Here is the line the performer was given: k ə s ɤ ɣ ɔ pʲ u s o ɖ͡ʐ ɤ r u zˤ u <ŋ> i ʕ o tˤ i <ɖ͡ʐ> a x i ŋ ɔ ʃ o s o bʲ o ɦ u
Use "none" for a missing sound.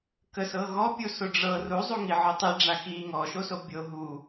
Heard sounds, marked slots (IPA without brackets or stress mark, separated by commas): ŋ, ɖ͡ʐ